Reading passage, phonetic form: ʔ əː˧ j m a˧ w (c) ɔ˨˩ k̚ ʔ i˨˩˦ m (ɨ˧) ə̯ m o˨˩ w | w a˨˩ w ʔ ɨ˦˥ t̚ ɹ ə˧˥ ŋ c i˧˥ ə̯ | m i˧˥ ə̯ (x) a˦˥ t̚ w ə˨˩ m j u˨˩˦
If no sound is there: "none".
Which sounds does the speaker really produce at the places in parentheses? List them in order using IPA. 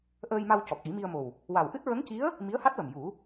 c, i˧, h

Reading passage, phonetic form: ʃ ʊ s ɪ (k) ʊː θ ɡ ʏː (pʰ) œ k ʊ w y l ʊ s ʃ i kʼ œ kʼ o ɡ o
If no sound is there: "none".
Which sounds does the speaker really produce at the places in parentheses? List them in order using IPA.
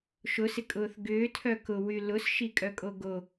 kʼ, tʰ

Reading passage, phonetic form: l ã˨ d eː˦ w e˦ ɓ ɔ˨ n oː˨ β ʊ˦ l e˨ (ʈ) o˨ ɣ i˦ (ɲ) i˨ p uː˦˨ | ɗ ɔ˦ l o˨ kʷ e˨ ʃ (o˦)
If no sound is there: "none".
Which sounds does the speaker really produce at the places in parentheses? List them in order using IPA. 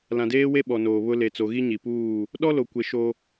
t͡s, ɲ, o˦

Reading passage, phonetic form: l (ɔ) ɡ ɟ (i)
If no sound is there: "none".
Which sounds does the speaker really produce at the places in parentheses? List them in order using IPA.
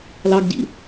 ɑ, ḭ

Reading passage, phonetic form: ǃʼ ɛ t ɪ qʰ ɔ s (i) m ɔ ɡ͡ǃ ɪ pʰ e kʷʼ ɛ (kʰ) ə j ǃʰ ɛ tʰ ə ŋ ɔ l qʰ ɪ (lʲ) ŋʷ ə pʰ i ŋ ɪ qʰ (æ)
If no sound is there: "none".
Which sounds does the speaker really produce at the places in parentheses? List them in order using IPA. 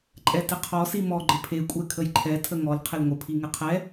i, kʰ, l, ɛ

